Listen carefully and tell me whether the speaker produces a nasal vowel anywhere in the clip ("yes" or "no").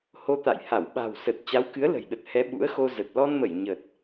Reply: no